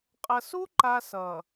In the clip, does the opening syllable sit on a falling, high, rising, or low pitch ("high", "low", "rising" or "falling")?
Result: low